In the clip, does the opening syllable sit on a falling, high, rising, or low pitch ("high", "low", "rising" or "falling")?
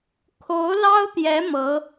rising